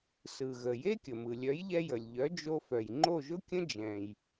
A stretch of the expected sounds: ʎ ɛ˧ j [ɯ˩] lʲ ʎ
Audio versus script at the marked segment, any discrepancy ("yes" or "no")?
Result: yes